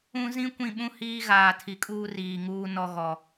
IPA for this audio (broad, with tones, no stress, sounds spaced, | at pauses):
ũ˦ z ĩ˦ kʷ ĩ˦˨ ɓ ũ˦ h iː˦ ɣ aː˨ tʰ i˨ kʼ uː˦ r iː˨ ŋ uː˦ n ɔ˦ ɣ ɔ˨